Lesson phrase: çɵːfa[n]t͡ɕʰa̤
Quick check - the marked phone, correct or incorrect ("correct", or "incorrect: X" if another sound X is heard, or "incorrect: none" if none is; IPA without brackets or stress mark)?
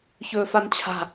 correct